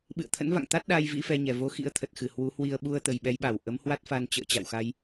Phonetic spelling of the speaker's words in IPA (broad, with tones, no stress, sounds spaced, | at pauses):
ɓ ɨ̰˧˨ ə̯ t̪ʰ ə̰˧˥ n v a̰˧˨ ŋ t̪ a˦˥ t̚ ɗ a˧ j v ḭ˧˥ f ɛ˧ ɲ ɛ˨˩ v o˨˦ x ḭ˧˥ ə̯ t̪ʰ ə˨˩ t̚ x ɨ˧˩ h w u˨˦ h w i˧ ə̯ ɓ u˧ ə̯ t̪ ə˨˩ j ɓ ɛ˨˦ j ɓ a˧˩ w ʔ ə˨˦ m h w a˦˥ t̚ f a˧ n t͡ɕ ə̰ː˧˨ t͡ɕ a̰˧˨ w x a˧ j